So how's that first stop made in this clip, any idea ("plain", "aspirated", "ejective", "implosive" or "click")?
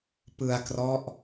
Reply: plain